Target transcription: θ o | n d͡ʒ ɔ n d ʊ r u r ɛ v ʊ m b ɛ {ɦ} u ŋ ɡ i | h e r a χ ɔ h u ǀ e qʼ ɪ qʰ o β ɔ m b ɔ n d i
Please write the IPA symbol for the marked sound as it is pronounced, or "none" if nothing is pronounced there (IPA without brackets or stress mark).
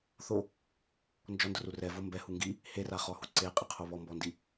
h